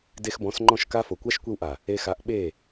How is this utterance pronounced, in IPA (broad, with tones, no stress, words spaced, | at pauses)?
de˧xbɔ̃˨˦sŋ͡ǃɔ̃˦˨ʃ ka˦ fo˨kʷa˦ʃ kʷe˧wʔa˨ | e˧xa˨˦ʔɓe˦˨